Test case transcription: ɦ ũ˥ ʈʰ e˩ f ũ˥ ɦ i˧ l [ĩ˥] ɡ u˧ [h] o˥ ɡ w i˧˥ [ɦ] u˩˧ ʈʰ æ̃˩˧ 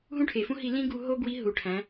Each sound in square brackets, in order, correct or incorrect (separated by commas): correct, incorrect, correct